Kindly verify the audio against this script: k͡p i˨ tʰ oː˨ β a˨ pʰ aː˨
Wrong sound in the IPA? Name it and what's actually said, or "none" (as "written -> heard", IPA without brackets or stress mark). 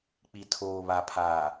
none